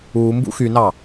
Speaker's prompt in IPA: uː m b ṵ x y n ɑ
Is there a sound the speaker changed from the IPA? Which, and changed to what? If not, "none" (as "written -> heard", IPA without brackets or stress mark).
none